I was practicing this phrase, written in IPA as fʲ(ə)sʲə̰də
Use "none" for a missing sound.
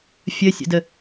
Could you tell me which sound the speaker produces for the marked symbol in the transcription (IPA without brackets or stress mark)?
ə